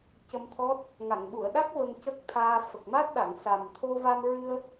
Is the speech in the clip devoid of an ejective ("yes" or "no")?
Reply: yes